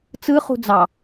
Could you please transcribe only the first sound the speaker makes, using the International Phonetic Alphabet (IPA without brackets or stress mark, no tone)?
t͡s